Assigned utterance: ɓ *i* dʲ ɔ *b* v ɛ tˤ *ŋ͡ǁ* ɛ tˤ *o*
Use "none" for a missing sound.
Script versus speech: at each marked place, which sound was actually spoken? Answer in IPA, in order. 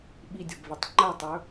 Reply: i, b, ŋ͡ǃ, ɵ

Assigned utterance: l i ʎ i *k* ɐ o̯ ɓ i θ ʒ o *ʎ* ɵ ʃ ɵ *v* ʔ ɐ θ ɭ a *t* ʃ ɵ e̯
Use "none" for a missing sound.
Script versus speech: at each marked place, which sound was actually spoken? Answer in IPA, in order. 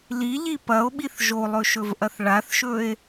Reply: p, lˠ, v, θ

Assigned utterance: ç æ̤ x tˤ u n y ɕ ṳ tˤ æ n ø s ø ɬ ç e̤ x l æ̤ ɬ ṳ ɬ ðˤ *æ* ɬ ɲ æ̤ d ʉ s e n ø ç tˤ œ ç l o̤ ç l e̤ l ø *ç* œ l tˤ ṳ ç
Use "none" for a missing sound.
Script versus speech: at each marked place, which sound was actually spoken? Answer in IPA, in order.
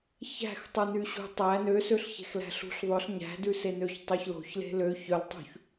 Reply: œ, ç

